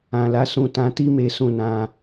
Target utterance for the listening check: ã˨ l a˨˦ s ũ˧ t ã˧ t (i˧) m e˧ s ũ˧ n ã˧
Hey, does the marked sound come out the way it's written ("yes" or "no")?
no